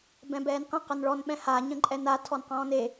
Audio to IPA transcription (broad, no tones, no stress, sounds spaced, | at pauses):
b ɛ̃ b ɛː n q ə̃ q ə n ɭ ɔ n ɓ ɛ̃ h a ɲ ə̃ ǃʼ ɛ n a tʰ ɔ n q ɔ̃ː n e